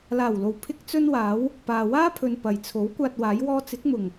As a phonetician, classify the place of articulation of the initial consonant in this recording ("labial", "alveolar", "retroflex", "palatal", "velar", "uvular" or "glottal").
alveolar